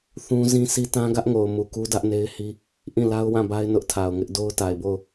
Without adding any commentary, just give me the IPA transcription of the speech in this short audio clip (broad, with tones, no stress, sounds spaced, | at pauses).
θ ũ˦ z ĩ˦ sʰ i˦ t ã˦ ɡ ä˦ ʔ ŋ o˨ ʊ̯ m u˨ k u˦ d ä˦ ʔ n e˦ ɪ̯ h i˦ | ʔ ĩ˦˨ l a˦ ʊ̯ w ã˦˨ b a˦ ɪ̯ n ʊ˦ ʔ tʰ a˨ ʊ̯ ŋ ɪ˦ ʔ d o˦ ʊ̯ t a˨ ɪ̯ b o˦˨ ʊ̯